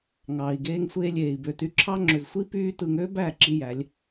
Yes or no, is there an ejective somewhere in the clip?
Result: no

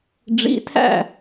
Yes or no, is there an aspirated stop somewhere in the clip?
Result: yes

